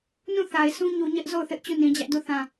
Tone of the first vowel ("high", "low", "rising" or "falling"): falling